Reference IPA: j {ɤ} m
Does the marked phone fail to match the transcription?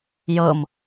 no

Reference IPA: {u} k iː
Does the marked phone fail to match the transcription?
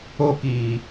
yes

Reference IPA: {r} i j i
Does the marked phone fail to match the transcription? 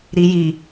yes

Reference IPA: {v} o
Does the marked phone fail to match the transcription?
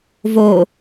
no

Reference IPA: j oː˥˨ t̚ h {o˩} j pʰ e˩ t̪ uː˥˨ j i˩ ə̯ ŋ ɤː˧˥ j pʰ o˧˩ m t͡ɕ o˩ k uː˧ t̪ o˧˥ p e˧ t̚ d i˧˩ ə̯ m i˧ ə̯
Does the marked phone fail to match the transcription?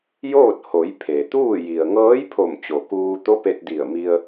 yes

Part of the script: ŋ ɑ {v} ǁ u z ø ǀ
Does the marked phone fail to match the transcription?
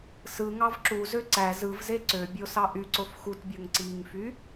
no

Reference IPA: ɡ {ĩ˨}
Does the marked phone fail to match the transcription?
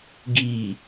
yes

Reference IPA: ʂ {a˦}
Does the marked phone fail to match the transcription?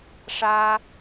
no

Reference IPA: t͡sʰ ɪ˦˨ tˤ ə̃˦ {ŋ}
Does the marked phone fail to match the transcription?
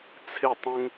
no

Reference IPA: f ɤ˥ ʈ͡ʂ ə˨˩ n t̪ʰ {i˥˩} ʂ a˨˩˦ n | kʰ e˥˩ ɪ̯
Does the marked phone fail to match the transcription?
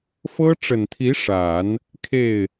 yes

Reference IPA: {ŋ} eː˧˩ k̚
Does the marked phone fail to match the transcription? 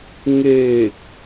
no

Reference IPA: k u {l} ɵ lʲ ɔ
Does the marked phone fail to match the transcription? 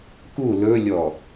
no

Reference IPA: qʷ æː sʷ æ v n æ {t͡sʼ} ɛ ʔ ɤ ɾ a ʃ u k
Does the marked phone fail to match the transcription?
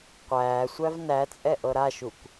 no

